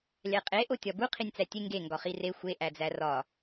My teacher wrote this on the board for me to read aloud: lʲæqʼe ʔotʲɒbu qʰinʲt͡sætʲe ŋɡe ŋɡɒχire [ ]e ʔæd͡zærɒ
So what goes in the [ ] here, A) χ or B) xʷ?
B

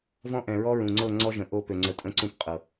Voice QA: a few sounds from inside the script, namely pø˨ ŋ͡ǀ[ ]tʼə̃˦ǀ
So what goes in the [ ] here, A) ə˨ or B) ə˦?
A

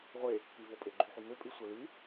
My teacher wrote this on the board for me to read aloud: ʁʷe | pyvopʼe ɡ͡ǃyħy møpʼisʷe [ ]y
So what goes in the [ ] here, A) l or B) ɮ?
A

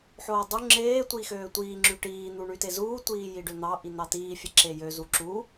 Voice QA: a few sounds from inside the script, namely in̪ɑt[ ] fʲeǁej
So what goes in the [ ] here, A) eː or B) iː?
B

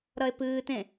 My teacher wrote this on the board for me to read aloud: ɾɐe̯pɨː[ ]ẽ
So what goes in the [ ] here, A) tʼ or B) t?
B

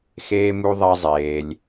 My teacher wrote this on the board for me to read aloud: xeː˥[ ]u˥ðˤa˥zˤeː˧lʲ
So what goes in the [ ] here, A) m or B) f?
A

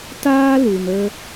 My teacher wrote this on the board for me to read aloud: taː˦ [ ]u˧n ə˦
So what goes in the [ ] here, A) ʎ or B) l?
B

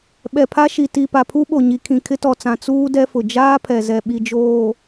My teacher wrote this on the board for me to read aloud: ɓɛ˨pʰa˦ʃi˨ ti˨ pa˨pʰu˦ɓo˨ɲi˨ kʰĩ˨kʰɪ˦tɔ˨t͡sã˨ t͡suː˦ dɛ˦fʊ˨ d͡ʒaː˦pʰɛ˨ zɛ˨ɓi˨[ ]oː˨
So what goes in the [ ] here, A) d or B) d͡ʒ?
B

